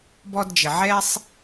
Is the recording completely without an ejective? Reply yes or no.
yes